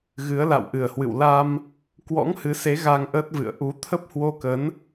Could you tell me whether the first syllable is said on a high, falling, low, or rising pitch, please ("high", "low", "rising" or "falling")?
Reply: rising